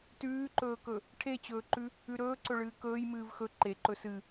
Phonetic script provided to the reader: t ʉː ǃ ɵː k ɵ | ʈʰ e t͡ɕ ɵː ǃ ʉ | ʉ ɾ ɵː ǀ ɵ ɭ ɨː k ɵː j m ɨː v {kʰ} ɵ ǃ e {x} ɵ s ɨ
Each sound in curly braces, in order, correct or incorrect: incorrect: x, incorrect: ǃ

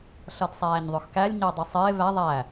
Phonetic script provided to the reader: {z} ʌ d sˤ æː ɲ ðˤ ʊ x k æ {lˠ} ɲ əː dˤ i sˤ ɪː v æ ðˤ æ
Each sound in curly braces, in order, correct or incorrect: incorrect: ɬ, incorrect: lʲ

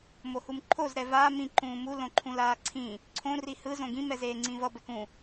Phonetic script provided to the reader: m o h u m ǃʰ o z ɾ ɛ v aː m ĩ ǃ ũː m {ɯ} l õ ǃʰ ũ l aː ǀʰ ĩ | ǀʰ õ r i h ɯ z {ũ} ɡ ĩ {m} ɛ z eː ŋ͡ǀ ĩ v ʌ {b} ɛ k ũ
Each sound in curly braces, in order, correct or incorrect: incorrect: u, incorrect: õ, correct, correct

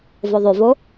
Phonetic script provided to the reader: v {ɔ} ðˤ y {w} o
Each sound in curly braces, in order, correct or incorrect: incorrect: o, incorrect: v

